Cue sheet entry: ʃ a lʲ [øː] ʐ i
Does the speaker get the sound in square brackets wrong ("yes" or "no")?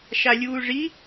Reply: yes